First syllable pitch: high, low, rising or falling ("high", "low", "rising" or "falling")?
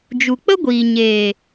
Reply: low